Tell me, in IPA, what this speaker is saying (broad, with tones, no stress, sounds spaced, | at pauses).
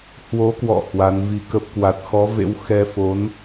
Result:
h w o˨˦ k w ɔ̰˧˨ h w a˨˦ n v i˧ k ə˦˥ p̚ k w a˨˩ t̚ x ɔ˨˦ v ḛ˧˥ w x ɛ˧ f o˨˦ n